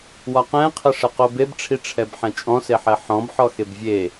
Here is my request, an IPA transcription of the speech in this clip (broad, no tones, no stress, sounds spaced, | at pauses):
w ɒ q ɛ̃ qʰ ə ʂ ə q o b e b ʈ͡ʂʰ i ʈ͡ʂʰ ɛ b ħ ɛ̃ t͡ʃʼ ɔ̃ s e ħ ɛ ħ ɔ̃ b ħ ɔ x e b vʲ e